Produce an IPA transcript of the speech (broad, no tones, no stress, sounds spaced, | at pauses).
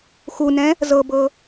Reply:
x u n ɛ̃ | z ɤ b ɤ